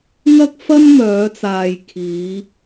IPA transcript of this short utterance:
ŋɐ˥k̚fɐ˥nmœː˨˧t͡saː˨j kʰiː˨˧

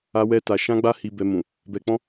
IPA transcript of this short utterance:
a˦wɛ˦ta˧ ʃã˦ɡ͡ba˦ hi˧bɛ˧mũ˨ | bɛ˧k͡pɔ̃˦

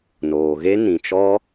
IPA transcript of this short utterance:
noː˨ɣe˦ nĩ˨t͡ʃɔ˦

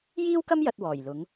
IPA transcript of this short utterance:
jiː˥wkɐ˥m jɐ˧t̚wɔː˨˩jlʊ˨˧ŋ

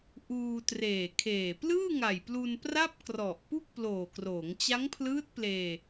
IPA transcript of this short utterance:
ʔuː˧treː˨˩kʰeː˨˩ plɯː˥˩ŋa˨˩jplu˧n pra˥˩p̚krɔ˨˩ʔpu˥˩k̚ploː˨˩ kroː˩˦ŋt͡ɕa˦˥ŋpʰlɯː˦˥t̚pleː˧

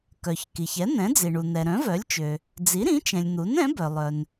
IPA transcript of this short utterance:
kœ˩çki˩ç ɛ˩˥ n̪ɛ̃˩˥d͡zi˩ɳu˩ n̪ɛ˩ɾœ̃˩˥vœ˩˥lʲt͡ʃø˩ | d͡zi˩˥ɾĩ˩˥t͡ʃɛ̃˩lʲ n̪u˩˥nɛ̃˩˥bœ˩ lˠœ˩n

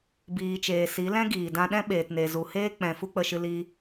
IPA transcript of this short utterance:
biː˨t͡ʃeː˨si˨˦ lɛ̃˦ɡiː˨dã˧ɗɛ̃˦ ɓeː˨tne˨zu˨heː˦ k͡pɛ̃˨ fu˦k͡pə˧ʃɨ˧ li˦

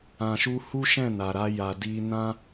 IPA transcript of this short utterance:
ã˨ʃu˧ hu˦ʃɛ̃˦˨ na˨ɾa˧ ja˨ di˧nã˦

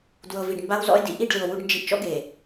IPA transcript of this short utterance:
dwɤ˨vi˨ɖ mba˦wzɔ̰˦e̯dḭ˦ ʔi˦˨ɖlɯ˨o̯ wu˦ɖnd͡ʒi˦ʔ t͡ʃɔ̰˦ɡe˨

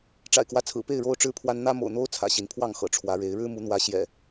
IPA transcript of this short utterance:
ʈ͡ʂa̰˨˩ɪ̯kwä˦t͡sʰɹ̩˨˩pe˥˨ɪ̯ ɻo˦ʊ̯ʈ͡ʂɻ̩˦pʰwa˦n n̪ä˦mo̰˨˩ʊ̯n̪o˦ʊ̯ t͡sʰä̰˨˩ɕi˨˦npʰwɑ˥˨ŋxɤ̰˨˩ ʈ͡ʂʰwä˨˦ɻe˨˦ɪ̯ ɻɻ̩˦ mu˨˦n̪wä˨˦ ɕjɛ̰˨˩

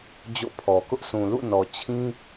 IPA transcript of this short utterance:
d͡ʑo̰˦˨pʰɔ˨ kʊ˦ʔsũ˨ lṵ˦˨nɔ˨t͡ɕʰĩ˦

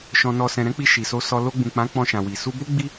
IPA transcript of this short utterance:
ʃɔ̃˨nɔ˨sɛ̃˨ɾɛ̃˨˦ k͡pi˧ʃi˨so˧ sɔ˧ lo˧ɡ͡bũ˨k͡pã˨˦ k͡pɔ̃˧ʃã˨wi˨ su˧bo˦ ɡ͡bi˦

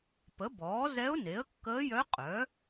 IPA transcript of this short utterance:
pə˩˥bɔː˩˥ zɛ˧˥ʊ̯ne˩˥ə̯kːəː˧˥jœ˧˥ qʼœ˩˥

